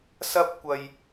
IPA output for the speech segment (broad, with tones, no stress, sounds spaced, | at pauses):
s ɐ˥ p̚ kʷ ɐ˥ j